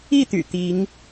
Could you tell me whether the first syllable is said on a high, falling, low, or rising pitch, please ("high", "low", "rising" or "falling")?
falling